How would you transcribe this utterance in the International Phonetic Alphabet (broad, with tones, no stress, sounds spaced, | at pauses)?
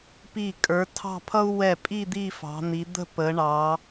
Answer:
p i˧˩ kʼ ə˞˩˧ tʰ ɑ̤˥˧ pʰ ʌ˥ u̯ w ɛ˧˩ pʼ i˥˧ d̪ i˥˧ f ɑ̤˩˧ n̪ i˩˧ d̪ ə̤˥˧ p ə˩˧ ɳ ɑ˩˧